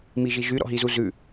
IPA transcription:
m i ʒ i ʒ y ɾ ɔ̰ ɦ i z u z ʉ

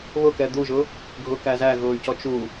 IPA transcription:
β ʊ k ɛ d̪ u ʒ ʊ | ɡʱ ʊ k æ z æ ɣ ʊː y̯ c ɔ t͡ʃ u

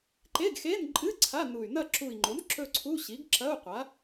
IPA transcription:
ǃ e˧˥˧ ɡ x e˧˥˧ n ǃʼ ɨ˧˥˧ ǀʰ a˧˥˧ n u˨˩ y̯ n ɐ˦˨ ǁ u˨˩ i̯ ŋ͡ǃ o˩˥ n ǁ ɵ˦˨ ǀʰ u˧˥˧ ɕ i˩˥ ɡ ǁ ɐ˧˥˧ u̯ qʷ a˩˥

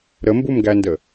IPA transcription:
ɾ ə m b u m ɡ æ n d ə

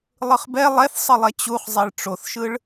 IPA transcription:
lˠ ɯ χ b ɛ lˠ ɛ θ sˤ ɯ lˠ ɛ t͡ɕ u χ zˤ e ɭ ʈ͡ʂ o θ ʃ ɯ ɭ

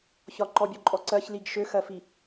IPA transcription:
ç ɒ ǃ ɔ bʲ ɔ ǃʼ ɔ ǀ ɜ ç l i ɡ ʃ ø x ɜ f i

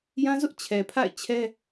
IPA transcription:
j ã˦ z ʊ˦ ʔ t͡ɕʰ ɛ˨ pʰ a̰˦˨ ɪ̯ t͡ɕʰ ɛ˦

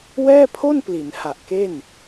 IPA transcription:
w ɛː˥˩ pʰ o˥˩ n p l i˩˦ n h a˨˩ ʔ k e˥˩ n

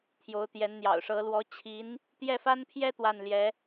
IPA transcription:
t̪ʰ j o˧˥ ʊ̯ t̪ j ɛ˧˥ n n̪ j ɑ̰˨˩ ʊ̯ ʂ ɤ˧˥ l w ɔ˧˥ t͡ɕʰ i˧˥ n | t̪ j ɛ˥˩ f a˥ n pʰ j ɛ˥ t̪ w a˥˩ n l j ɛ˧˥

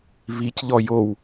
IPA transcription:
β i c ʎ ɔ j o w

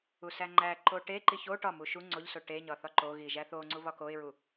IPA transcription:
u s æ ŋ͡ǃ æ ǃ o ʈ e ǃ i ç o ʈ ɒ m u ʃ u ŋ͡ǀ o ʎ s o ʈ e ɲ ɒ θ ɒ ǃ o ɣ i ʒ æ θ o ŋ͡ǀ u β ɒ k o ɪ̯ ɹ u

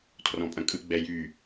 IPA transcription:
tʰ r ɔ̃ pʼ ɐ̃ kʼ ɯ ɡ͡b ɛ j y

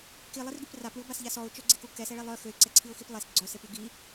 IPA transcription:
k i lˠ i r ɡ y p r a p ɭ y ʊ̯ b a s ʎ a s ɔ ʊ̯ t͡ʃ œ ɡ͡ǀ e k u k ɛ s ɛ ɭ e lˠ œ x ø ɪ̯ ǀ ɛ ǀʰ i ʊ̯ x i p lˠ e s ɡ͡ǀ œ s e p y ɡ i

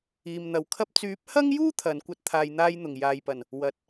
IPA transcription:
iː˨ m n̪ ɐ˨ w kʰ ɐ˥ p̚ t͡s yː˨˥ p̚ h ɐ˥ ŋ j uː˥ t̪ʰ ɐ˨˧ n kʷ ɐ˥ t̚ t̪ʰ aː˧ j n̪ aː˥ j n̪ ʊ˨˩ ŋ j aː˨ j p ɐ˨˩ n | w ɐ˨ t̚

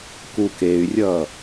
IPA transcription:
k u k e y̯ rʲ ʌ

